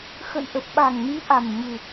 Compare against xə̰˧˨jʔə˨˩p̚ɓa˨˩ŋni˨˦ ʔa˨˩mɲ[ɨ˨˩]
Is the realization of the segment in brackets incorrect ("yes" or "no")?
no